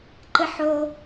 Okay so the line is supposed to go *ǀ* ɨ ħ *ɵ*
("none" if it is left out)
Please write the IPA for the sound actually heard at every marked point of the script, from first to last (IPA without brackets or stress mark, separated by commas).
ǃ, o